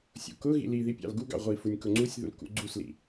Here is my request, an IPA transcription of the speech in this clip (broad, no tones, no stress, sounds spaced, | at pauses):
sʲ ṵ k ʊ ɣ ḭ l i ð i pʲ ɑ̰ l ɡ u ɡ ɑ̰ ʁʷ i f u nʲ k ʊ ŋ͡ǀ u sʲ ð ṵ l k ṵ ɡ͡ǀ u s l ḭ